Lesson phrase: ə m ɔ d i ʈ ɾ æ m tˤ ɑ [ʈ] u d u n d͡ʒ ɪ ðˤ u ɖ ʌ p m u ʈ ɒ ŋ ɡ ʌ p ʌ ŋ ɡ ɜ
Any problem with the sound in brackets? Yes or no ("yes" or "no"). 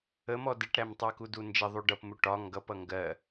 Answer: yes